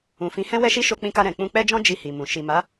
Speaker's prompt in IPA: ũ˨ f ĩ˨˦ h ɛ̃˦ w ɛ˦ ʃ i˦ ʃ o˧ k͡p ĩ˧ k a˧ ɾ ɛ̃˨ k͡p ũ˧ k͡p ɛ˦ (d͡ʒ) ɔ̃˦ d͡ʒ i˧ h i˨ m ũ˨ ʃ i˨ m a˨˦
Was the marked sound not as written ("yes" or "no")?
no